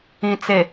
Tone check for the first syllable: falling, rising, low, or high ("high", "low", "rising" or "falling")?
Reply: low